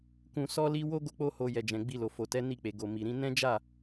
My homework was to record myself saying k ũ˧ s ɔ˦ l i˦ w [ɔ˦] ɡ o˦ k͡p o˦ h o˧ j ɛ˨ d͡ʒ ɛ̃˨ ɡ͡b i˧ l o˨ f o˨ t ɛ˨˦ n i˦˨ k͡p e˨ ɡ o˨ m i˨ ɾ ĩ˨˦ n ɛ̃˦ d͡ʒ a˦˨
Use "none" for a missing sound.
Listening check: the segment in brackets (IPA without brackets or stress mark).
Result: o˦